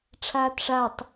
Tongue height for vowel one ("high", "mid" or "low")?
low